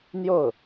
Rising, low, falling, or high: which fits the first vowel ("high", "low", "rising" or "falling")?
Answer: falling